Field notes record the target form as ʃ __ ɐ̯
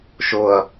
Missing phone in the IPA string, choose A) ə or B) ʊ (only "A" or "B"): B